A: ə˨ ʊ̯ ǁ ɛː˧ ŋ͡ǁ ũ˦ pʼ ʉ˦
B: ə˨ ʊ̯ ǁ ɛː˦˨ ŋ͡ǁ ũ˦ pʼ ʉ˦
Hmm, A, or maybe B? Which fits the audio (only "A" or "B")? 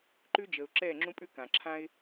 B